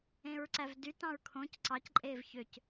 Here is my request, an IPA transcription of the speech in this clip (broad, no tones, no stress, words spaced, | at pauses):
ẽɹǀævdy tɑ̃ɹkʰõc ǀɑcǃʼeːv çøc